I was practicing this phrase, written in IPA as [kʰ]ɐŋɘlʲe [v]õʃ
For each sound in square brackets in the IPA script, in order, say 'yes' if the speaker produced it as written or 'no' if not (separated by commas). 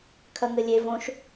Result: yes, yes